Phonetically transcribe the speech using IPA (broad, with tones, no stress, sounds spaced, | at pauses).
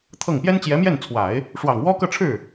t̪ʰ ɤ˥˩ ŋ p j ɛ˥ n t͡ɕ j ɛ˧˥ m j ɛ˥˩ n t͡sʰ w a˨˩˦ ɪ̯ | ʂ w ɑ˨˩ ŋ w ɔ˥ k ɤ˥˧ ʈ͡ʂʰ ɻ̩˥˩